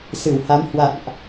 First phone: s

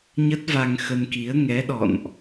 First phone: ɲ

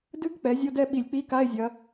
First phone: d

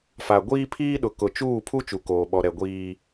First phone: f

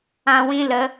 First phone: ã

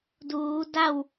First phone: d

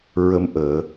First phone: ɹ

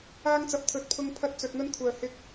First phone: aː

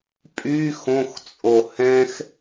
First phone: pʼ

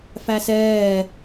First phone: f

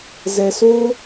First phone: z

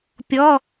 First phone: pʲ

